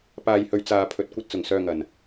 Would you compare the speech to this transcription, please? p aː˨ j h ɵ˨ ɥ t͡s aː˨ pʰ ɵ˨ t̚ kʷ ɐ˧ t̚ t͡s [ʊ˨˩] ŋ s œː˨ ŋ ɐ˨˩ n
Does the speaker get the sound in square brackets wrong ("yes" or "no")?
no